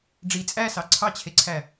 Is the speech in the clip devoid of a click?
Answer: no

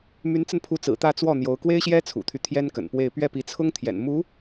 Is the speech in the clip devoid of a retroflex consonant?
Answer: yes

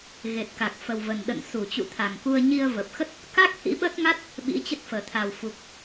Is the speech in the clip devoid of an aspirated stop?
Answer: no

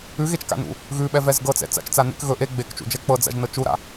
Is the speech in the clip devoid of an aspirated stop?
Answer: yes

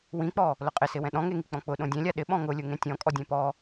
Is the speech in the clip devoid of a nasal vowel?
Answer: no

